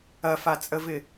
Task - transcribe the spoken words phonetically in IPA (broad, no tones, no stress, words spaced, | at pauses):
ɐfat͡sʼəvɪ